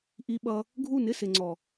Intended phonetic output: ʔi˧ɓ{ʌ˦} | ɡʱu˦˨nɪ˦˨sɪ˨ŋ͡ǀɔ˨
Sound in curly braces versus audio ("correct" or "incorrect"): incorrect